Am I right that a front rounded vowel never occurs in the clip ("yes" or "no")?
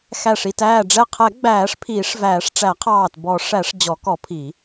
yes